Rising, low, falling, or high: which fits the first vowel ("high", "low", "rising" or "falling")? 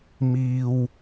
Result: low